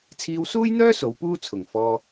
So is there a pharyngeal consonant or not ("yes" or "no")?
no